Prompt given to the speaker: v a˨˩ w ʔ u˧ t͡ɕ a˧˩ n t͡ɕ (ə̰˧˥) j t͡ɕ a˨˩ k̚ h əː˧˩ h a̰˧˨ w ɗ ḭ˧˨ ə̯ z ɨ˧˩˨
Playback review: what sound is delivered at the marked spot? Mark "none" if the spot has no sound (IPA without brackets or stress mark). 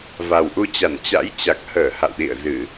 a̰˧˥